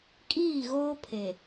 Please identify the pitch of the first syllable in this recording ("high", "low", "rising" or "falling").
falling